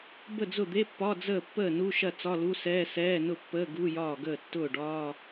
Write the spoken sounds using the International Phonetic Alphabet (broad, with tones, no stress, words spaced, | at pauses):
bə˥˩d͡zʊ˥˩d̪e˧˥˧pːɒ˧˥˧ d͡zəː˥˩pːəː˥˩ nu˧˥˧ʃɐ˥˩ t͡sɒ˧˥˧lu˧˥˧sɛː˧˥˧ sɛː˧˥˧nʊ˥˩pːəː˧˥˧ ɡu˧˥˧jɒː˥˩ɡəː˥˩ tːʊː˥˩ɖɒː˧˥˧